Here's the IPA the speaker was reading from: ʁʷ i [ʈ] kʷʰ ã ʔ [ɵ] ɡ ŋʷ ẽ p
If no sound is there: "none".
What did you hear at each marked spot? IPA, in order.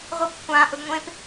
p, ɵ

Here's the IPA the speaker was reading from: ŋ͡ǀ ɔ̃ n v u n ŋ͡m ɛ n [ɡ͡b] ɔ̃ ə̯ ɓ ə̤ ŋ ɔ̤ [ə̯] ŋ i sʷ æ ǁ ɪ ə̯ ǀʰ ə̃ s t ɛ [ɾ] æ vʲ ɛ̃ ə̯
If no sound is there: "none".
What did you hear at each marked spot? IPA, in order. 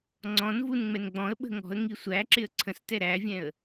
ɡ͡b, ə̯, ɾ

